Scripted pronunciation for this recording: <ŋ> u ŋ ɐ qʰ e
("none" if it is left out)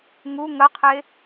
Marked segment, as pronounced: ŋ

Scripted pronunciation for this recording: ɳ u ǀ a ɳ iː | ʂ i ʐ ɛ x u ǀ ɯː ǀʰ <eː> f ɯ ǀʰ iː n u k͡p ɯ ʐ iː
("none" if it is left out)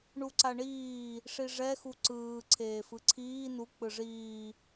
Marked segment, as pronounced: eː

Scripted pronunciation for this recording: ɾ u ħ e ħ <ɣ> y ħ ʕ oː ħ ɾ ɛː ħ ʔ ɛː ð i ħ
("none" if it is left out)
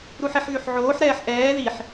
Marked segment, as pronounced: ɣ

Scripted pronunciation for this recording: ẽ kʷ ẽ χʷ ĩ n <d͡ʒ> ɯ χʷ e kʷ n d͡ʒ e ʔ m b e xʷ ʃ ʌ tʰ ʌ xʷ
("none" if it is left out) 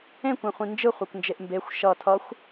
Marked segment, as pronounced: d͡ʒ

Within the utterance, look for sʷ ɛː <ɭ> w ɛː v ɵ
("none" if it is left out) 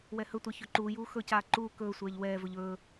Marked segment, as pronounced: ʎ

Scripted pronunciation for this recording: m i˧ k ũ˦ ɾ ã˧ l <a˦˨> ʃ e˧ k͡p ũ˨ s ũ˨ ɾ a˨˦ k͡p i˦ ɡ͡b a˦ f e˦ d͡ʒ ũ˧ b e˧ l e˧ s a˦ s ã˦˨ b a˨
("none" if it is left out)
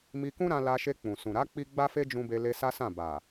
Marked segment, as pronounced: a˧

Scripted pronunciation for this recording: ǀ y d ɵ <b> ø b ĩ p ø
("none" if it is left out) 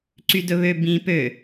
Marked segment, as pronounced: β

